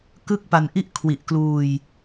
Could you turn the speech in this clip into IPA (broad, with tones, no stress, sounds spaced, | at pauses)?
k ɯ˥˩ k̚ p a˧ n ʔ i˥˩ ʔ kʰ w i˨˩ ʔ k l uː˧ j